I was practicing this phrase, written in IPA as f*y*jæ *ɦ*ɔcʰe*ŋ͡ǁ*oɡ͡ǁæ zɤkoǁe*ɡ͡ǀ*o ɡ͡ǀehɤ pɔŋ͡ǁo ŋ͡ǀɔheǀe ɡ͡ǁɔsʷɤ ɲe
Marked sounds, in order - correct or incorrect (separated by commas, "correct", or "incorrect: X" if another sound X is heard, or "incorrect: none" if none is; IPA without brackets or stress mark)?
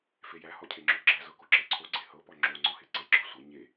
incorrect: e, incorrect: h, correct, incorrect: ǀʰ